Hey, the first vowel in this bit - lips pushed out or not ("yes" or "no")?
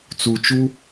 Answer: yes